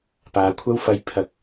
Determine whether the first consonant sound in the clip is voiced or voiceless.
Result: voiceless